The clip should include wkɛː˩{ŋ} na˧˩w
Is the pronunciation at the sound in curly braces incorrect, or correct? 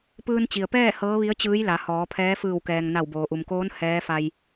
correct